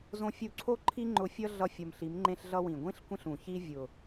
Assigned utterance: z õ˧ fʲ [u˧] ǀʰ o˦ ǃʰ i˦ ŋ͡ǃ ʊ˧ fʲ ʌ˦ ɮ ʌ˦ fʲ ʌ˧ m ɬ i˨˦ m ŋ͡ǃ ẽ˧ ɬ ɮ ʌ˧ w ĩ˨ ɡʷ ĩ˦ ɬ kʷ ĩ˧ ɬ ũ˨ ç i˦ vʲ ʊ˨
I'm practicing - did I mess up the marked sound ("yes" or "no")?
no